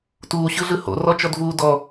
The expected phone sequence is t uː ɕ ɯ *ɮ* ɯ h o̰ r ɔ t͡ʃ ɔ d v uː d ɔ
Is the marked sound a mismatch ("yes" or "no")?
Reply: no